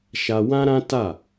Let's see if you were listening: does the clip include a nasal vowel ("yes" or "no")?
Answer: yes